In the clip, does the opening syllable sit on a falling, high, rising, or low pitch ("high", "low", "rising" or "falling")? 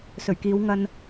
low